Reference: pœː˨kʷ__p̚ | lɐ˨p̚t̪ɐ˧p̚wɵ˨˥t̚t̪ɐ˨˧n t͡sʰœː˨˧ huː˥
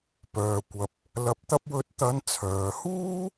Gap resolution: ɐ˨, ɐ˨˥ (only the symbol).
ɐ˨